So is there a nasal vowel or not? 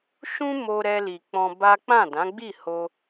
yes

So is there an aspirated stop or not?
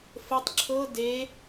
yes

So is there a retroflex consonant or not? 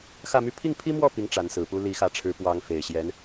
yes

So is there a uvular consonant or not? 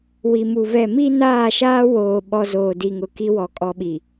no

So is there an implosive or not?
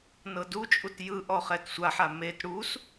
no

